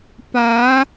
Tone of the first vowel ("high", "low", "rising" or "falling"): rising